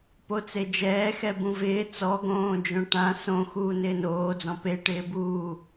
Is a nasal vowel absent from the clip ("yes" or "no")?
no